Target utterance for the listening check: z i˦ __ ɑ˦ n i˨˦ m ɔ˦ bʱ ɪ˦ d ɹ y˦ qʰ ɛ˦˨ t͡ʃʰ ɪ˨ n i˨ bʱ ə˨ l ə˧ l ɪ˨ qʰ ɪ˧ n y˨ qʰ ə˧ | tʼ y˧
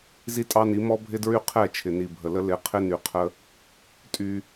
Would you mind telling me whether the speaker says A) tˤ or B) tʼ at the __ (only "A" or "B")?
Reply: B